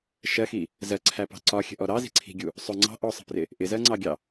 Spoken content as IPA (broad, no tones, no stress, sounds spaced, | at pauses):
ʃ ɜ x i | z ɜ ǀʰ æ p ɑ̤ ǀ ɒ xʲ ə̤ ʔ ɔ ɾ ɑ z i̤ ǀʰ i̤ ɡʲ u | sˤ ʊ ŋ͡ǀ ɑ̤ ʔ ɔ sˤ ə̤ p r ɪ | ʔ ɪ z ɜ ŋ͡ǀ ɑ ɡʲ ɑ